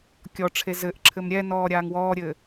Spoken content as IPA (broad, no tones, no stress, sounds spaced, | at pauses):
kʲ ɔ ʈ͡ʂʰ e z ɘ ʔ ǁʰ ɘ m ɾʲ ɛ n ɔː ɾʲ aː ŋ w ɔː ɾʲ ɘː